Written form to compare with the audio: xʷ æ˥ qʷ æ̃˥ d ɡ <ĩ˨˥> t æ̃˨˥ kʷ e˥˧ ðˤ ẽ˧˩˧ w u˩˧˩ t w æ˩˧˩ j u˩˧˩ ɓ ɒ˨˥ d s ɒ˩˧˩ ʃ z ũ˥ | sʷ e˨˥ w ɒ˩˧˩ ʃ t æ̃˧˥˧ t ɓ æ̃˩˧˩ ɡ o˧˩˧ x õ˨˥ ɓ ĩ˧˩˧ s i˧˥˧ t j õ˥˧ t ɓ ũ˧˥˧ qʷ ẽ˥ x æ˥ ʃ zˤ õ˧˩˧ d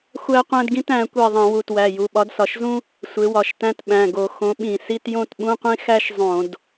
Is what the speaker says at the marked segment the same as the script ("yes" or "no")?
no